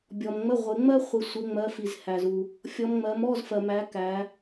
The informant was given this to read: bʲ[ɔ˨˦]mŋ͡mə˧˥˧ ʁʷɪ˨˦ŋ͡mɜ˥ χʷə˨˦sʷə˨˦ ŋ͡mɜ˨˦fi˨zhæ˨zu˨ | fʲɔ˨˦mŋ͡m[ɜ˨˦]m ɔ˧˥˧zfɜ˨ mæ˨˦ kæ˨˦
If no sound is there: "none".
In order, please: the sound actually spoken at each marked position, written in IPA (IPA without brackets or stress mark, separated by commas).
ɔ˨, ɜ˨˦